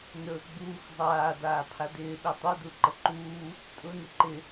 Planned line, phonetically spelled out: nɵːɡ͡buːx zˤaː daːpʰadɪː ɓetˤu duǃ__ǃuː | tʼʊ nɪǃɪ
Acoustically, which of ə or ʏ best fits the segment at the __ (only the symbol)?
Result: ə